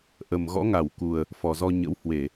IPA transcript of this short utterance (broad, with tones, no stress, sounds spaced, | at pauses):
ʔ ə˨˩ m ɣ ɔ̰˧˥ ŋ a˧˩ w k u˨˩ ə̯ | f ɔ˨˩ z ɔ˧ ɲ ə̰˧˥ w h w e˧˩˨